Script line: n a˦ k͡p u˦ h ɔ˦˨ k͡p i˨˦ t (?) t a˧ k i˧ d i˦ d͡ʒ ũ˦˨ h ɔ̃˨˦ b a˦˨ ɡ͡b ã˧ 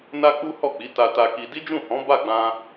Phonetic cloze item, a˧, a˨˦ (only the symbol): a˧